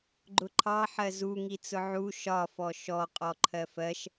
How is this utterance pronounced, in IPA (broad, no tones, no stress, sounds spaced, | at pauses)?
ɡ͡ǃ ʊ ǃʰ ɑ ħ ɜ z u ŋ i t͡s ʊ ʕ u ʃ ɒ f ɔ ʃ ɔ qʼ ɔ ǃʰ ɜ f ɜ ʃ